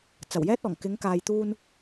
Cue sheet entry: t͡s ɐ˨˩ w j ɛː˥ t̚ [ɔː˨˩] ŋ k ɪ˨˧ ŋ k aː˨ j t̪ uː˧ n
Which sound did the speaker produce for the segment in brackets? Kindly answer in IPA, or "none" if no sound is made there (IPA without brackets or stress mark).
ɔː˨˩